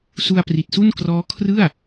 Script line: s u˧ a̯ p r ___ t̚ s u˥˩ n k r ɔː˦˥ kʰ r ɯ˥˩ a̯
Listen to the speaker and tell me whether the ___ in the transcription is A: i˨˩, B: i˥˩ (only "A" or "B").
A